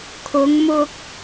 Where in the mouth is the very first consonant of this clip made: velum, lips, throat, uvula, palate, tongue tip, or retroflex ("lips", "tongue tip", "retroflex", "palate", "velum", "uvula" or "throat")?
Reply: velum